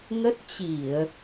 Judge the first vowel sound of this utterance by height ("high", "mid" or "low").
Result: mid